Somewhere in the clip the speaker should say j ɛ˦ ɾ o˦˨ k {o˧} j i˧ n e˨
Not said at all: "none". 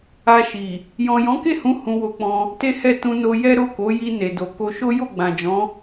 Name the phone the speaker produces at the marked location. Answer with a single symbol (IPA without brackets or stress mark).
o˨˦